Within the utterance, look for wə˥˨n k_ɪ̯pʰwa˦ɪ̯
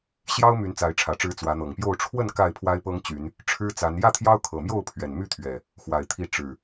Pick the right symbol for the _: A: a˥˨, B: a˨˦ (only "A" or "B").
A